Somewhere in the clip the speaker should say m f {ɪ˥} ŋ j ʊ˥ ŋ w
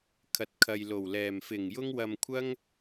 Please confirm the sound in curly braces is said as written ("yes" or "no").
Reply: no